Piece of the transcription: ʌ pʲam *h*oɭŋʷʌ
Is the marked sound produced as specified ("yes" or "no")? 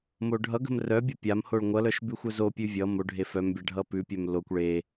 yes